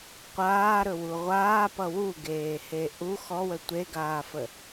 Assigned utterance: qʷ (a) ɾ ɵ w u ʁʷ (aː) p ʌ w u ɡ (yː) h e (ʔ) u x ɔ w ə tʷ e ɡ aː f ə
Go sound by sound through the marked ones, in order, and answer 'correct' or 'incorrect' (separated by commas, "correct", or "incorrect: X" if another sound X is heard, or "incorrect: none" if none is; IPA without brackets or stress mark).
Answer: incorrect: aː, correct, incorrect: eː, correct